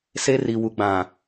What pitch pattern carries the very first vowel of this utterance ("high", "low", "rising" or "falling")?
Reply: high